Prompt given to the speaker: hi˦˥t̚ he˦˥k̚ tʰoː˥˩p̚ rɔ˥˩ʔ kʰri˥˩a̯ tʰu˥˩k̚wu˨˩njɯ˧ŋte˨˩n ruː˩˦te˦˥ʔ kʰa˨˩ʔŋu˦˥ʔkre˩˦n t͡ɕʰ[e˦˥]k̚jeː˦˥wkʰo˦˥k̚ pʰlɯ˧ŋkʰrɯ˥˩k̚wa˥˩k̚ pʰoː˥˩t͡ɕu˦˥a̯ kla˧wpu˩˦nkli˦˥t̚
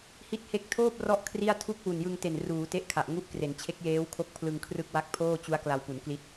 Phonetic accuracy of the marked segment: correct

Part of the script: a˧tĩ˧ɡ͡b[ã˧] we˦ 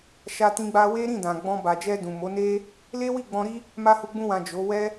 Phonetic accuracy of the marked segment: incorrect: a˧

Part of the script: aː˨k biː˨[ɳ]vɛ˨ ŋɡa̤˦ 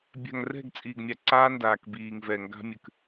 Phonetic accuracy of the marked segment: incorrect: ŋ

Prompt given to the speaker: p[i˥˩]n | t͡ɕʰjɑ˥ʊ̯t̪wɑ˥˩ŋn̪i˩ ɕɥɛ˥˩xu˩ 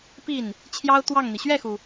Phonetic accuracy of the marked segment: correct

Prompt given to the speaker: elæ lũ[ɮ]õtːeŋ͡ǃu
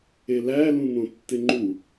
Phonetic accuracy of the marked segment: incorrect: n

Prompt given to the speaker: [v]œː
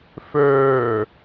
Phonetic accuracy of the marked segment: incorrect: f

